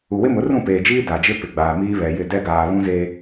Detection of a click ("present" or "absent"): absent